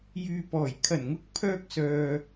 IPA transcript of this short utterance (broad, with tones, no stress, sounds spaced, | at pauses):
j yː˨ p ɔː˨˩ j kʰ ɐ˨˩ n ŋ ʊ˨˥ k̚ pʰ œː˧ k̚ s œː˨